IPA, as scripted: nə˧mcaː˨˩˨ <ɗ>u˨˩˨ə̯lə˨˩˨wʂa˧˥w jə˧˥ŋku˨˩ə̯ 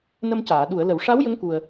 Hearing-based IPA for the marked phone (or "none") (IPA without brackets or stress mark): ɗ